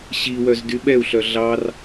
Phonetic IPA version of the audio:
ɕ i w œ z d y ɓ ɛ u̯ ɬ œ ɮ ɑ r

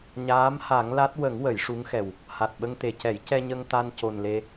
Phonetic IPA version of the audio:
ɲ aː˧˥ m h a˨˩˦ ŋ l a˦˥ t̚ w ə˨˩˦ ŋ w ə˨˩˦ j ʂ u˧˥ ŋ x ɛ˨˩ w | h a˨˩ t̚ ɓ ə˧ ŋ t̪ e˨˩ c ɛ˨˩˦ j c ɛ˧ ɲ ə˧ ŋ t̪ a˧ n c o˨˩ n l e˧

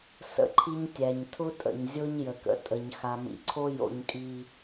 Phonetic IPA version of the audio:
s ə̰˦ ǃʰ i˦ ɲ tʲ æ˨ ɲ tʰ ʊ˦ tʼ ə̰˨ ɲ zʲ o˦ ɲ j ə˨ k ə̰˨ tʼ ə˨ ɲ x a˨ m ḭ˨ ǀʰ o˦ j o̰˨ ɲ kʼ i˨

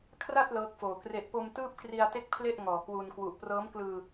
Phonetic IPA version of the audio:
kʰ r a˥˩ t̚ l ɤː˦˥ k̚ f oː˨˩ k r e˨˩ ʔ p o˧ m t ɯː˥˩ p̚ k r i˧ a̯ t e˥˩ k̚ pʰ l e˥˩ ʔ ŋ ɔː˨˩ k w u˧ n k w u˨˩ ʔ p r ɤː˦˥ m k l ɯː˧

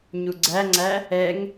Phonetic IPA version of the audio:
ɲ u ɡ͡ǀ æ ŋ͡ǀ æ | ɛ ŋ

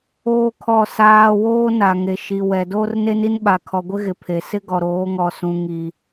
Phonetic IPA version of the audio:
oː˦ kʰ ɔ˦˨ s aː˦ w oː˦ n a˨ ŋ e˨ ʃ i˨ w ɛ˨ d oː˦ r n e˦ n i˦ n ɓ a˨ kʰ ɔ˨ ɡʷ ɪ˦ ɣ ɪ˨ pʰ e˨ s ɪ˦ ɡ ɔ˨ ɾ oː˨˦ ŋ ɔ˨ s ũ˨ ŋ i˨

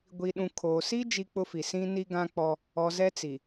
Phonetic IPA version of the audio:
ɡʷ i˨ ɗ ũ˨ kʰ oː˨ s i˦ d͡ʒ i˦ k͡p ʊ˦ f i˨ s ĩ˦ n i˦ ɡ ã˦ k͡p ɔ˦ | ɔ˨ z ɛ˦ t͡s i˨

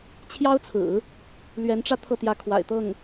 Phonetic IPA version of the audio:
t͡ɕʰ j ɑ˥ ʊ̯ t͡sʰ ɹ̩˨˩˦ | l ɥ ɛ˧˥ n ʈ͡ʂ ä˥˧ t̪ʰ ɤ˥˩ t̪ j ä˧˥ kʰ w a̰˨˩ ɪ̯ t̪ ɤ˥˩ ŋ

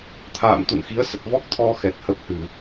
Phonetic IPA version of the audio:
t̪ʰ a̰ː˧˨ m t̪ ṵ˧˨ n x i˨˦ ə̯ s ə˨˩ t̚ v ɔ˦˥ k̚ t̪ʰ ɔ˧ x ɛ˨˩ t̚ h ə˦˥ p̚ h ɨ˧˩˨

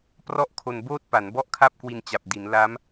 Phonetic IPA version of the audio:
p r ɔ˥˩ ʔ kʰ o˧ n b oː˥˩ t̚ p a˩˦ n b ɔ˥˩ ʔ kʰ a˥˩ p̚ k w i˧ n t͡ɕ a˨˩ p̚ d i˩˦ n l a˦˥ m

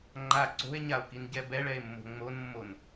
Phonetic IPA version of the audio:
ŋ͡ǃ a ǀ o̤ e̯ ɲ a o̯ k i n ɟ ɛ b ɛ ɭ ɛ e̯ mː o̤ ŋ͡m o n mː o n

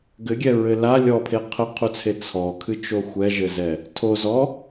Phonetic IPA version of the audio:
ɡ ɘ ɡʲ ɛ ɹ ɘ l a lʲ ɔ pʰ e qʰ ɘ qʰ u t͡sʰ e t͡sʰ ɔ kʰ ɨ t͡ʃ o xʷ ɛ ʒ ɘ z ɛ | tʰ o z ɔ

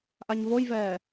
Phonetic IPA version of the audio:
ʔ a ɲ v o j v ɛː

